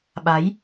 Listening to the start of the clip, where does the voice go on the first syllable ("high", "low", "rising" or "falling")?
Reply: rising